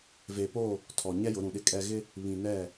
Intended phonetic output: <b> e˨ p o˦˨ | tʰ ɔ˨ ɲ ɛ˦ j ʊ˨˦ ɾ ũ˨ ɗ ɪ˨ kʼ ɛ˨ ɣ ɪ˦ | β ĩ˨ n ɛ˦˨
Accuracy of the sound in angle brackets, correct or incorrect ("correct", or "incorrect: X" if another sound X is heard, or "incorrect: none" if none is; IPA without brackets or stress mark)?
incorrect: v